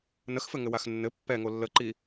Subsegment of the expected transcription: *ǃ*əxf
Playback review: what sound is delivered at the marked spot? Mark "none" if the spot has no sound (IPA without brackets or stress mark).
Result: n